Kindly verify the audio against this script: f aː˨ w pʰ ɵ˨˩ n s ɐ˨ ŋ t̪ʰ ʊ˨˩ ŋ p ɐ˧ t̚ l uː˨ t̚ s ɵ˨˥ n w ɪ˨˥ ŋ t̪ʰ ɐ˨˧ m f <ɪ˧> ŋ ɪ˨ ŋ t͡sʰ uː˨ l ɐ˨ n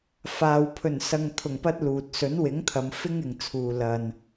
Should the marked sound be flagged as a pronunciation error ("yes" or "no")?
yes